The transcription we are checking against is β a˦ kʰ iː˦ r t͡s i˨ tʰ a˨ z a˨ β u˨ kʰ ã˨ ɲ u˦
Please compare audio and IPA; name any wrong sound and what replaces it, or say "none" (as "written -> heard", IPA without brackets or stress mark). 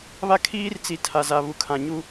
none